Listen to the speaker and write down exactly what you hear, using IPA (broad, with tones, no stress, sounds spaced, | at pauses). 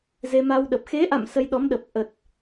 z e˧ m a˧ w ɗ ə˨˩ p̚ x e˨˦ ʔ a̰˧˨ m s ə˧ j ɗ ɔ˨˦ m ɗ ə˨˩ p̚ ʔ ə˨˩ t̚